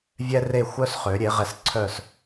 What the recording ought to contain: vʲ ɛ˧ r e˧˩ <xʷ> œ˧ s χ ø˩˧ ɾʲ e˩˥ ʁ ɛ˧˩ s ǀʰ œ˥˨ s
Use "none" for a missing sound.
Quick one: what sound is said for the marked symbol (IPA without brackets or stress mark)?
xʷ